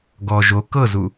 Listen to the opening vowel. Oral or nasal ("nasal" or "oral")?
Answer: oral